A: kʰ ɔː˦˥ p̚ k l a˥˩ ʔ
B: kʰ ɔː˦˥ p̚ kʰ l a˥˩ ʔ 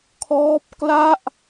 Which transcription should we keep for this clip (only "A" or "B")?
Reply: A